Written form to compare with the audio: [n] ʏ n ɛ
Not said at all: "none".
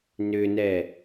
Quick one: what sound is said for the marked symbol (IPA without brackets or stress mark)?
n